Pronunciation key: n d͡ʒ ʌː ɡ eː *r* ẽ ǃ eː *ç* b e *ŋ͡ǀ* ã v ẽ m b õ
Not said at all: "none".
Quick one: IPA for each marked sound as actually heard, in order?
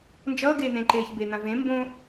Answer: n̪, ç, n̪

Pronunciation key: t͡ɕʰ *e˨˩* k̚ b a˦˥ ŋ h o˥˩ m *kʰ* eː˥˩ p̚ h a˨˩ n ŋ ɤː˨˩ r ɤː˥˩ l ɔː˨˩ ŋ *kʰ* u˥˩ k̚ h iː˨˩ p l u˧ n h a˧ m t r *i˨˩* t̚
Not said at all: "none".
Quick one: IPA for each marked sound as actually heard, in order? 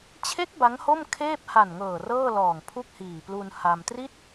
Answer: e˦˥, kʰ, pʰ, i˥˩

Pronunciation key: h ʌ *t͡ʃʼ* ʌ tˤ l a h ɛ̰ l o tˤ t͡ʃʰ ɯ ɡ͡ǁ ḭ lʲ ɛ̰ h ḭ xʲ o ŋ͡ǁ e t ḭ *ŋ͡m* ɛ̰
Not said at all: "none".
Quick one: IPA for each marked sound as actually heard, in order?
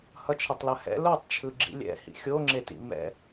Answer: t͡ʃʰ, m

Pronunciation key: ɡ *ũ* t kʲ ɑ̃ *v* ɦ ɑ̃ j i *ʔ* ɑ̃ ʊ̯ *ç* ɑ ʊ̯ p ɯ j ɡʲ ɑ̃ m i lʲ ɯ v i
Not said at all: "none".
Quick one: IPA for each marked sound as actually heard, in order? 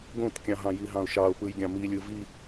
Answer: õ, none, ɦ, ʃ

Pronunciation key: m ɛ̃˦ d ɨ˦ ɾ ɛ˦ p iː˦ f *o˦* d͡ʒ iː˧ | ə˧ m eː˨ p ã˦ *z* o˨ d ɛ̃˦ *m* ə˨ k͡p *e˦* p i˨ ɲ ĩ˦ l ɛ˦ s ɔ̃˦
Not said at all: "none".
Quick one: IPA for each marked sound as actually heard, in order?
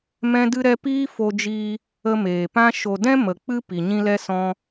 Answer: o˧, ʃ, m, ɨ˦

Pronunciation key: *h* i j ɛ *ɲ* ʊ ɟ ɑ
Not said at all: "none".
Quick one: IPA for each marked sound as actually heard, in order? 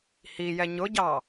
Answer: h, ɲ

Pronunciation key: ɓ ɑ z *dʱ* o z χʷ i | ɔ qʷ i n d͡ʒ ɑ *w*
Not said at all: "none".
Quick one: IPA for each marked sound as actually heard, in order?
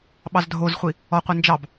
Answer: dʱ, b

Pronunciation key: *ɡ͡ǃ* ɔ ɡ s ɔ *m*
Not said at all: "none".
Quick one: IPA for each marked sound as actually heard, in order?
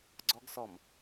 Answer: ɡ͡ǀ, m

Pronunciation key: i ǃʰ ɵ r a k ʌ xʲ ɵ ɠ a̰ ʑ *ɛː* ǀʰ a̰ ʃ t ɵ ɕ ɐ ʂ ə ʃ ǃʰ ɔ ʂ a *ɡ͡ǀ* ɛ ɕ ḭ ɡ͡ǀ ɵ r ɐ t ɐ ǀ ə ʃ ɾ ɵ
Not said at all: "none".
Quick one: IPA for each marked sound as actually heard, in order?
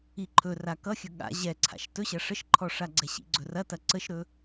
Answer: ɛ, ɡ͡ǀ

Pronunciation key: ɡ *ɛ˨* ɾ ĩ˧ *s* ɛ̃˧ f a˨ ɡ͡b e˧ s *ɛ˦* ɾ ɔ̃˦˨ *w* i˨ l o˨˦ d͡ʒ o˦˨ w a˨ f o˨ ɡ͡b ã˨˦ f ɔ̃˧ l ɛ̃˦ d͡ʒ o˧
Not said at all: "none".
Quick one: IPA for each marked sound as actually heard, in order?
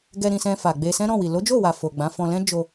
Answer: ɛ˧, s, ɛ̃˦, w

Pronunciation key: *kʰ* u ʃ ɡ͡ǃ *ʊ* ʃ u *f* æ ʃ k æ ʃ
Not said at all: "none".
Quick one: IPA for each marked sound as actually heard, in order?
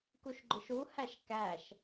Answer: k, ʊ, h

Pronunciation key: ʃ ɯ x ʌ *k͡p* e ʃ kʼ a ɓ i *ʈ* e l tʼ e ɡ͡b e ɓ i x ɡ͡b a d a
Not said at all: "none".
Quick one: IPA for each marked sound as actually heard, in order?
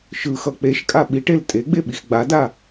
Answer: k͡p, ʈ

